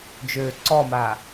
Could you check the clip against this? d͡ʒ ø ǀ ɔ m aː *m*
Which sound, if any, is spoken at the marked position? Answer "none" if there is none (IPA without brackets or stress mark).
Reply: none